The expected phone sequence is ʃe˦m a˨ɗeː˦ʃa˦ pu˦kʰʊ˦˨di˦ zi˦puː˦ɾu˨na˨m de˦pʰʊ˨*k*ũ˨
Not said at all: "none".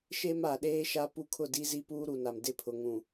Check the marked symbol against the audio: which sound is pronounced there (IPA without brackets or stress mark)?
ŋ